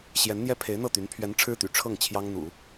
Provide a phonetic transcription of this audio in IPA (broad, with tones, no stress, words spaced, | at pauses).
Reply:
ɕjɛ˧˥nn̪jɛ˥pʰe˧˥ɪ̯ n̪ɤ˥˩t̪y˧˥n pʰɥɛ˧˥n ʈ͡ʂʰɻ̩˥t̪y̰˨˩ ʈ͡ʂʰɤ˥˩ŋ t͡ɕʰjɑ˥ŋ n̪ṵ˨˩˦